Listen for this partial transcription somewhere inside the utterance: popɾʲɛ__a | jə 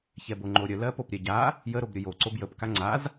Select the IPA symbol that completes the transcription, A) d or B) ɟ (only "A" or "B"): B